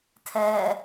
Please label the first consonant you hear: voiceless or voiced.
voiceless